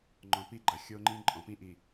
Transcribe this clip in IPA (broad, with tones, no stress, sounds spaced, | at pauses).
ŋ͡ǃ ɔ̃˨ p i˦ ɡ͡ǃ ɐ˨ xʲ o˦ ŋ͡ǃ ĩ˦ ǃʼ ɔ̃˨ p ĩ˦ ʔ i˨